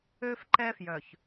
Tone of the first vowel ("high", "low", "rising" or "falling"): high